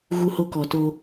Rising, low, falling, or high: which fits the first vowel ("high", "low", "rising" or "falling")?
high